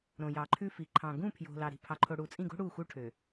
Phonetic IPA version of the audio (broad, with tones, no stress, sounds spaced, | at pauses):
ɾ õ˨ j ɑ˨ ǃʰ ʉ˦ f i˨ ǃʰ ɑ̃˨ ɡ ũ˦˨ pʰ j o̤˨ l ɑ˨ ɾ i̤˨ pʰ ɑ˨ ǃʰ o˨ ɽ u˨ t͡sʼ ĩ˦˨ ɡ o̤˦ ɽ u˦˨ x u˦ ʈʰ ø˨